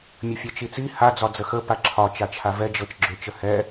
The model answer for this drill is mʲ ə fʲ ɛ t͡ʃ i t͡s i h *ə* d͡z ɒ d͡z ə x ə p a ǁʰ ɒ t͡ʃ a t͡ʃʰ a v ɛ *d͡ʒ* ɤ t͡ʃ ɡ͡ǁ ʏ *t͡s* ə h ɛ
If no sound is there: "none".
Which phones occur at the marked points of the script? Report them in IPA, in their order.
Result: a, d͡ʒ, t͡ʃ

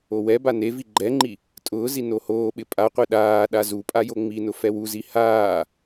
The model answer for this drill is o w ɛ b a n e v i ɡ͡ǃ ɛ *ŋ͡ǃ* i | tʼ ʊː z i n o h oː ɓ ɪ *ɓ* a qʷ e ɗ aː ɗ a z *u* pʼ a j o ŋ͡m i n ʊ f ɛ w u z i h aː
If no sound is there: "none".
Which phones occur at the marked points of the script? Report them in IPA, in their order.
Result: ŋ͡ǃ, pʼ, u

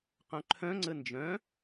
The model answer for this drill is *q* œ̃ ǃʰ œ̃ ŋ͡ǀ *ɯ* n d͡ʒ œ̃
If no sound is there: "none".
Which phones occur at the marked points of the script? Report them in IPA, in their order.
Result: q, ə

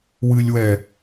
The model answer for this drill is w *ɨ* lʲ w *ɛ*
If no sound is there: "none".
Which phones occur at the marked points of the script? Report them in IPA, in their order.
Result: ɨ, ɛ

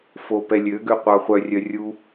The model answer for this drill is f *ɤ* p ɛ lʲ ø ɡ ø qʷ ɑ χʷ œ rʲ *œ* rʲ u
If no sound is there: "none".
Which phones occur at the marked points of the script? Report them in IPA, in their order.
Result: o, œ

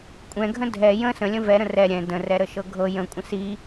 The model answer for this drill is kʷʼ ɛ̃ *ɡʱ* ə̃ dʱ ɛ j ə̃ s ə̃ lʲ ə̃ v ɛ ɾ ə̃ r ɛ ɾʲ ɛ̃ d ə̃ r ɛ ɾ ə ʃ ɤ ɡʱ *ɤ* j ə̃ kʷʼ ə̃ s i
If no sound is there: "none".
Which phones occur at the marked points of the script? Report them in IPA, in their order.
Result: ɡʱ, ɤ

